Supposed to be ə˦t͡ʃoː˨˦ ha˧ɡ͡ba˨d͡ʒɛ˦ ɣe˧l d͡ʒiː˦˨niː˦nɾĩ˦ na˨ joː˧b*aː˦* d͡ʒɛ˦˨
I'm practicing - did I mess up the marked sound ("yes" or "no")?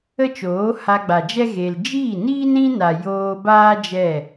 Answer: no